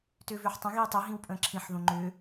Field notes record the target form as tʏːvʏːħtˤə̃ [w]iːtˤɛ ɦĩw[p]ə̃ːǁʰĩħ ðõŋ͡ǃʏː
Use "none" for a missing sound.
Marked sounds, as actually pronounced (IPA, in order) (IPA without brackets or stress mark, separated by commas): ɣ, pʼ